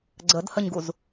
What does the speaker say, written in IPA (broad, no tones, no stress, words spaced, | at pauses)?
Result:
ɡ͡ǀədhəɲɡuz